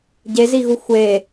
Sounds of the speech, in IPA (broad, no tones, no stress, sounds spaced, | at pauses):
ɟ e z i ɣ u xʷ e